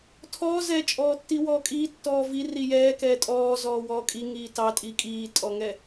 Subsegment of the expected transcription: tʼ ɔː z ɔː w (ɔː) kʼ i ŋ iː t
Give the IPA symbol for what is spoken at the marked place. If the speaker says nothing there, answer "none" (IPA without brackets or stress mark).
ɔː